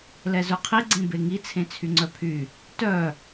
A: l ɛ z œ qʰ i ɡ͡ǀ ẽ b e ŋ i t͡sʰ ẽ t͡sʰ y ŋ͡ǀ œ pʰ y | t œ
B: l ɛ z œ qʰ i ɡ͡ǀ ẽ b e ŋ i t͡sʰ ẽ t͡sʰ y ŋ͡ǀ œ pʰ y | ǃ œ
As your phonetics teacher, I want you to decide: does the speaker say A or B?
A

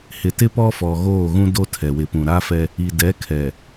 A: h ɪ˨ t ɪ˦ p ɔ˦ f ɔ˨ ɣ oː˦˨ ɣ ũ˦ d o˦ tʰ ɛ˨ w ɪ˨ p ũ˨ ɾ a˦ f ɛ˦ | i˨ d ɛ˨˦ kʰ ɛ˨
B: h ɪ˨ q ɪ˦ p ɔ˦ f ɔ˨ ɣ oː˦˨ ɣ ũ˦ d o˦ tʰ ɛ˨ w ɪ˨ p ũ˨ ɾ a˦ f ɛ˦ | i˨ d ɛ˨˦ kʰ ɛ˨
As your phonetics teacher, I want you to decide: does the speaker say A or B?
A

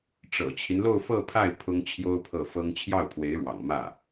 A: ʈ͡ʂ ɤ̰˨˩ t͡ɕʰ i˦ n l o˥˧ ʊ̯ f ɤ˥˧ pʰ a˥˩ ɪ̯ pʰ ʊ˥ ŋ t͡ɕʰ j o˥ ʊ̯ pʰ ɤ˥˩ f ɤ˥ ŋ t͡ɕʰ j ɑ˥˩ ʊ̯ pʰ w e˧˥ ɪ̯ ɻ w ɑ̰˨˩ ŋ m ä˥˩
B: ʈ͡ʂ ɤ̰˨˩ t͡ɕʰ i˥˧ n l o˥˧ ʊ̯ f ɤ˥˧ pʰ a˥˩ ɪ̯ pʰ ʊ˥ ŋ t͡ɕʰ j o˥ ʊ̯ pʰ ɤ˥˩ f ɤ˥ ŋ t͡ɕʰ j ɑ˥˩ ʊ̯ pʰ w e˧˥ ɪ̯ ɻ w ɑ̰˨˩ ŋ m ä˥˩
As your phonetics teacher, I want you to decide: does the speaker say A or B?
A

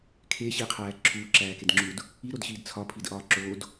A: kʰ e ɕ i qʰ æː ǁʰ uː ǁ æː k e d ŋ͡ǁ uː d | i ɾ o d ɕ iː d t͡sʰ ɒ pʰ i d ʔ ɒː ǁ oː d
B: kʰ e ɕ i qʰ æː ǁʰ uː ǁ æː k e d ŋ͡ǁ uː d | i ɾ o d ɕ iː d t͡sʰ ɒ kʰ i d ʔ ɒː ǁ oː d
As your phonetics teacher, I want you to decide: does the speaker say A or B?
A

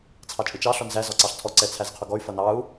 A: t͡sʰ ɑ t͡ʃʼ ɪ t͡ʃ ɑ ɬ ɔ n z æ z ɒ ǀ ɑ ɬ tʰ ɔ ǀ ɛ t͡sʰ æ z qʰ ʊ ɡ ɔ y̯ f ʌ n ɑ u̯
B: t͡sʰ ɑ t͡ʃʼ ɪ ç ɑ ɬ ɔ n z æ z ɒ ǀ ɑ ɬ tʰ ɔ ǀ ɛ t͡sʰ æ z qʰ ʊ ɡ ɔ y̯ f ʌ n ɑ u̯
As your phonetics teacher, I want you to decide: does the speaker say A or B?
A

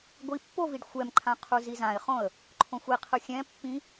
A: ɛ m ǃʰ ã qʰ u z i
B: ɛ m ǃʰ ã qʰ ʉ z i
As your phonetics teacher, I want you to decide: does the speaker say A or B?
A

